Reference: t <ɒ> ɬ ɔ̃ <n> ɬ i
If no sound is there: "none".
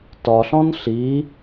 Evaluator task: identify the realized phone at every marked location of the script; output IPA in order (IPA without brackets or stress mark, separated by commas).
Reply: ɒ, n